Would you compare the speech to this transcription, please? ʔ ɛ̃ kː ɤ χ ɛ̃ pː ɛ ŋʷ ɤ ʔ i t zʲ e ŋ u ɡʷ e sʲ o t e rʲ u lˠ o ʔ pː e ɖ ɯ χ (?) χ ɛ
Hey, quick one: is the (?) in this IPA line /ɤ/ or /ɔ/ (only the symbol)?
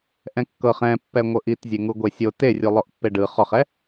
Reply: ɔ